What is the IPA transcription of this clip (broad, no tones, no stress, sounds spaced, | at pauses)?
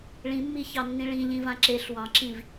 ɭ ĩ mː i ç ɑ nː ĩ ɭ ĩ ʎ ĩ v ã ǁ e ɬ w ɑ̃ ǁ ĩ v